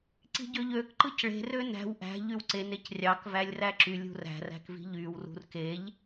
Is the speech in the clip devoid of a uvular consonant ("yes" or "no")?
yes